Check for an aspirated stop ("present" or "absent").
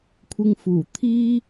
present